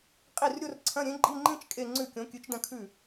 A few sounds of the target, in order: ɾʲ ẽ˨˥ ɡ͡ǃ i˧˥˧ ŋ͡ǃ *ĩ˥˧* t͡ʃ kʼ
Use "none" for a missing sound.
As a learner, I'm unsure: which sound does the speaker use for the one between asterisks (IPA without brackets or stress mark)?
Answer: ĩ˥˧